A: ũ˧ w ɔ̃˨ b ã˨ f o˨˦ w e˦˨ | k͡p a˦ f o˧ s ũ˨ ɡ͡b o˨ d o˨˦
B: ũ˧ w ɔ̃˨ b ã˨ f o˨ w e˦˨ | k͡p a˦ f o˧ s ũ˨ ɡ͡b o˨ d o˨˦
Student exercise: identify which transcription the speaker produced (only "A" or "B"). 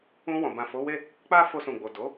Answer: A